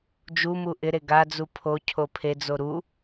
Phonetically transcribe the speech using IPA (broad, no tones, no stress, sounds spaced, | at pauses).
d͡ʒ u m u ʔ ɪ ɾ e ɡ a d͡z u pʰ o cʰ o pʰ e d͡z o ɾ u